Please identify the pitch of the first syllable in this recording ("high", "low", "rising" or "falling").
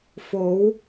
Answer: rising